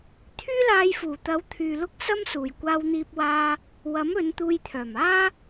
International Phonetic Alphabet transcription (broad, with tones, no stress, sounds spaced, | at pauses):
t̪ʰ yː˥ l aː˧ j f uː˨˩ t̪ ɐ˨˥ w t̪ʰ yː˨ l ʊ˥ k̚ s ɐ˥ m s uː˨˩ j kʷ aː˧ w n̪ iː˧ p̚ w aː˧ | w ɐ˨˥ m ɵ˨˧ n t̪ uː˧ j t̪ʰ œː˨˩ m aː˥